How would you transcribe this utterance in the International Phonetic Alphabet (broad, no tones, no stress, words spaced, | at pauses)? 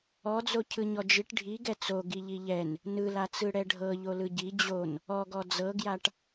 ɔd͡zo cʰɯɲɔd͡ʒiʈ ɖʱiɡɛ t͡so ɡiʎiʎɛn | nɯlat͡sɯ ɽɛɖʱɤ ʎolɯɟi d͡ʑon | ɔɡɔ d͡zɤɡjaʈ